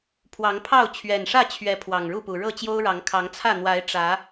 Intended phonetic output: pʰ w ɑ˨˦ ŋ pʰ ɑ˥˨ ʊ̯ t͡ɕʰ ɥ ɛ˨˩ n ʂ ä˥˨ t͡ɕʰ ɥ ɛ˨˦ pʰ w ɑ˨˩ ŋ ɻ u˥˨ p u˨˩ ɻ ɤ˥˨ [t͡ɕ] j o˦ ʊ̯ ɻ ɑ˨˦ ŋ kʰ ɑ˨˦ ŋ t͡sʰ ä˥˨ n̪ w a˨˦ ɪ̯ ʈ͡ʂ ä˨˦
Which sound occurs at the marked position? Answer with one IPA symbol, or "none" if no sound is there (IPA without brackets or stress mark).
t͡ɕ